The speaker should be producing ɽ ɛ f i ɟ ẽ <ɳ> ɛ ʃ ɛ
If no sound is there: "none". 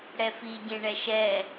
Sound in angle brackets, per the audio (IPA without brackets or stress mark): ɳ